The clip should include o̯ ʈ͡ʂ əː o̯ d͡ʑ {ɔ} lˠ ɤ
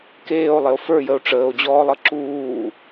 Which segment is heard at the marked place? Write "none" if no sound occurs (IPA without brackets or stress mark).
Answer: ɔː